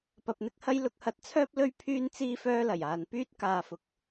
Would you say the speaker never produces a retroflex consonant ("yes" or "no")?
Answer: yes